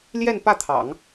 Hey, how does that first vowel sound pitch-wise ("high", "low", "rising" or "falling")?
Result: falling